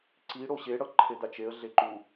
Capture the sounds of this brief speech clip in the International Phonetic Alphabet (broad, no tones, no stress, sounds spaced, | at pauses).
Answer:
ǀ i ɽ o ɕ e ɽ ʌ ǃʰ e d̪ a t͡ʃ e ə̯ ɮ e ǃ u